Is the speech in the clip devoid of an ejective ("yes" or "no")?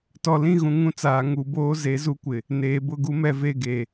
yes